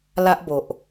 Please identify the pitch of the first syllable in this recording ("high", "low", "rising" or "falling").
high